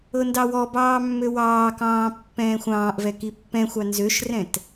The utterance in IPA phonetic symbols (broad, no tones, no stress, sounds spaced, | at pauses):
ɤ n d ɑ w ɔ b ɑː mː ø w ɑː k ɑ̃ː pː ɛ̃ː xʷ ɑ̃ː ʔ v ɛ k i pː ɛ̃ xʷ ɑ n z ø ʃ r ɛ̃ t